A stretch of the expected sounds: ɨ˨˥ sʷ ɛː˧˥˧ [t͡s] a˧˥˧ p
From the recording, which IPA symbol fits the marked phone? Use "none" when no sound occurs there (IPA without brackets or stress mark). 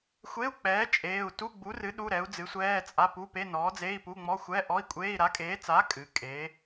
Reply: t͡sʼ